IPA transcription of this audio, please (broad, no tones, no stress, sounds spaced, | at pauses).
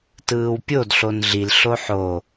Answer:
t ɯː w pʲ o d ɬ o n ɮ i l ɬ o ħ o